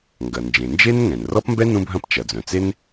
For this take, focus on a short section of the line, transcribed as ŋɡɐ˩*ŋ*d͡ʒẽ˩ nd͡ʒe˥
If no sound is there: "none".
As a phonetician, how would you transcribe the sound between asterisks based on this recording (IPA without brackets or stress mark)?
n